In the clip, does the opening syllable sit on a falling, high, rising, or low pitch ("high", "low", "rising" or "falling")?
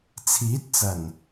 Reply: rising